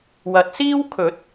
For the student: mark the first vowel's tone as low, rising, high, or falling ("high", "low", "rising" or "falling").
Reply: rising